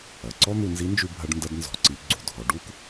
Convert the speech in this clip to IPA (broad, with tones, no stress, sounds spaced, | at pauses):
ɐ˩ ǀ ɔ˥ n̪ u˧ n z i˧˥ n d͡ʒ ʉ˧ bʱ ɐ˧ ɖ n d ɐ˧ d n z ɔ̤˩˧ ǀ i˩˧ ɡ͡ǀ u˩ dʱ ɔ˩˧ ɖ u˥ k